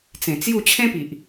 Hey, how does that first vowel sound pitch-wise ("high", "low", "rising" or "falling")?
low